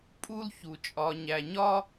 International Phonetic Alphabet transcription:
pʼ u˧ l ç u˩ t͡ʃʼ ɒ˩ ɲ æ˩ ɲ ɒ˧

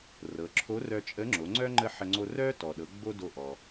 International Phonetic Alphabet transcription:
r ɤ˩˧ ǁʰ o˧˥ r œ˧ t͡ʃʼ ə˧˥ ŋ͡ǁ o˩˧ ŋ͡ǀ œ˥ ŋ͡ǃ ə˥ ħ ə˧ ŋ͡ǀ o˧ r œ˥ t ɔ˩ ɗ ɤ˩˧ ɡ͡b o˥ d o˧ ʔ ɔ˩

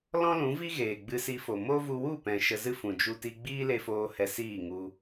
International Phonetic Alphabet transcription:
l ɔ̃˦ l ũ˨˦ v i˦ ɣ eː˨ ɡ͡b ɨ˧ s i˧ f o˨ m o˦ v u˧ w u˦˨ p ɛ̃˨ ʃ ə˧ z ɨ˦ f ũ˨ d͡ʒ u˧ t i˧ ɡ͡b iː˦ l e˧ f oː˧ h ɛ˧ s iː˦˨ ŋ u˧

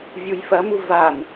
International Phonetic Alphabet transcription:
vʲ u j f ɐ m u v a n

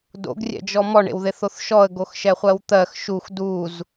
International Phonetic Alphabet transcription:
d o̰ ɡ rʲ ɛ̰ d͡ʒ ɔ m ɔ ɳ ḛ w ð e θ o θ ʃ ɔ ə̯ ɡ o x ʃ ɛ χʷ ɜ w t̪ ɜ x ʃ u x d u z

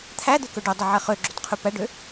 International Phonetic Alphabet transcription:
t̪ʰ æ d̪ ø k ɵ ɖ ɵ dˤ ɵ ʕ ɛ χ ø ɡ͡ǁ ɵ t qʰ ʉ p æ ɖ ø

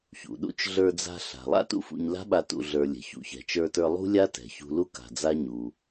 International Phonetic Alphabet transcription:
ç ṵ˩ ɗ ṵ˥ t͡ʃ ɮ ə˞˧ d͡z a̤˧ ɬ a̤˩ lˠ a̰˥ t ṵ˧ f ṵ˧ ɲ l a̤˥ ɓ a˧ t ṵ˧ ɮ ə˞˧ lʲ ɛ̤˩ ç ṵ˩ ç ɛ̤˩ t͡ʃ ə˞˧ t ə˞˧ lˠ ṳ˥ lʲ a˥ t ɛ̤˩ ç ṳ˧ l u˥ k a̤˩ d͡z a˥ ɲ u˩

